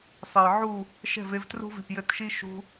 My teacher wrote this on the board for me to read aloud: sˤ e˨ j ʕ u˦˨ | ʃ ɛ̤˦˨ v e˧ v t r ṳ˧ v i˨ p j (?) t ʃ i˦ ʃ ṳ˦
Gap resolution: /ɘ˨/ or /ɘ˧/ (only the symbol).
ɘ˧